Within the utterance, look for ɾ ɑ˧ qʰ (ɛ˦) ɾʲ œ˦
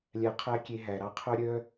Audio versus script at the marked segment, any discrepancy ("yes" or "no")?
yes